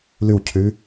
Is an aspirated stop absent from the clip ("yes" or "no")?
no